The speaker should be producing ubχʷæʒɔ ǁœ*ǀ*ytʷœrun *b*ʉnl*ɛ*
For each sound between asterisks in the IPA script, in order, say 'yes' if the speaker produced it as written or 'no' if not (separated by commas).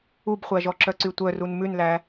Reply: yes, no, no